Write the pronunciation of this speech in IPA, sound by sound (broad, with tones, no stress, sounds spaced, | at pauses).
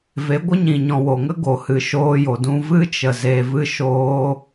v e˨˦ ɡʷ ə˦ ɲ ĩ˨ ɲ ɔ̃˨ w o˨ ŋ ə˦ ɡ o˨ h ɨ˨ ʃ oː˧ j o˨ d ũ˧ v ɨ˦ t͡ʃ ə˨ z e˧ v ɨ˦ ʃ oː˦